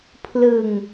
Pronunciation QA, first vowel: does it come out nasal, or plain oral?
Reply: oral